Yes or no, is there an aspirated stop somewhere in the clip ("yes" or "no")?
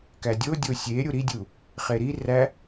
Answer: no